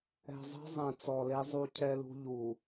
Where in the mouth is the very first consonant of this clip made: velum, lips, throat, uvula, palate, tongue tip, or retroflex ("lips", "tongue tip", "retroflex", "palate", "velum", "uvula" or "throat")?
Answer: tongue tip